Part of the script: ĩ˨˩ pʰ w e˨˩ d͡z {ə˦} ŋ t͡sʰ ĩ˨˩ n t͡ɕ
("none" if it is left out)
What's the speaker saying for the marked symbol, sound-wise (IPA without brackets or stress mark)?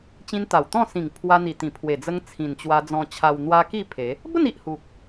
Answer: ə˧